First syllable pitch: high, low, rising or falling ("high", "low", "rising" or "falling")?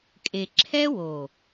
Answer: low